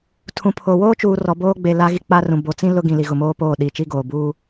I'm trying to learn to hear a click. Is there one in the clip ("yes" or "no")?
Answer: no